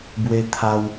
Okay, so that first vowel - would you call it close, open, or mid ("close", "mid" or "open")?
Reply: mid